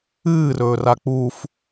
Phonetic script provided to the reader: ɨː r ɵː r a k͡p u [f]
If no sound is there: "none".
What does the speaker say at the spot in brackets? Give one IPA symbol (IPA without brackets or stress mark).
f